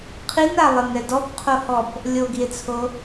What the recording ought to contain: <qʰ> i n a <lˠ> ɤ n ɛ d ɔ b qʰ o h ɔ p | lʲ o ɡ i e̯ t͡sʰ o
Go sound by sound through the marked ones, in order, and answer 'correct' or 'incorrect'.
correct, correct

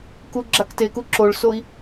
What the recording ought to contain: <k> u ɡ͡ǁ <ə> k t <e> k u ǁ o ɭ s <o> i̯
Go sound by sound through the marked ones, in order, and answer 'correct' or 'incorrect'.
correct, incorrect: a, correct, correct

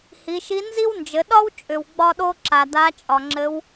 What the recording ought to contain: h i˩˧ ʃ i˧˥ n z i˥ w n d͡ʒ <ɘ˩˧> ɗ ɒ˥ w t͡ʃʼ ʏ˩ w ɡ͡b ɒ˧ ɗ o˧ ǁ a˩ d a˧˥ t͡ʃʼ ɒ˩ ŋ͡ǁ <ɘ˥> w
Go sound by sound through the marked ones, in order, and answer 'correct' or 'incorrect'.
correct, incorrect: ɘ˧˥

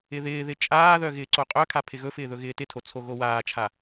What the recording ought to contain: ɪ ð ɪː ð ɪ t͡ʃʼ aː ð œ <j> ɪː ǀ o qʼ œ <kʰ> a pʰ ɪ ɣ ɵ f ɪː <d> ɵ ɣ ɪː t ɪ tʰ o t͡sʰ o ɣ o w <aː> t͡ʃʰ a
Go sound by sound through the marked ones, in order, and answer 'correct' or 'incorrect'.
incorrect: ɣ, correct, incorrect: ð, correct

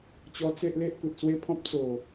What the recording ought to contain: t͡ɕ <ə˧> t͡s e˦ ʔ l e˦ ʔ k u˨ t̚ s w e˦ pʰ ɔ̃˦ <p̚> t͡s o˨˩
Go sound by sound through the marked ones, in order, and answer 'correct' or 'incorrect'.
incorrect: ɔ˧, correct

